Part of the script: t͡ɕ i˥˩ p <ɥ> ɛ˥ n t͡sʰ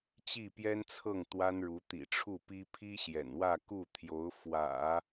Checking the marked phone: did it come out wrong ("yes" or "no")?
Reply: yes